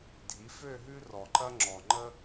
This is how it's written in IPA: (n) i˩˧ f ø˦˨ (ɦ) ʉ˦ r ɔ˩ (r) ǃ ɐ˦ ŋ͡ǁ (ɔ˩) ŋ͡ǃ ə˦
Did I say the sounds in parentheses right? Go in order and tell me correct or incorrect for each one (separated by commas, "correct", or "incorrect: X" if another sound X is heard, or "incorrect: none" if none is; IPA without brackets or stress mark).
incorrect: dʱ, correct, incorrect: none, correct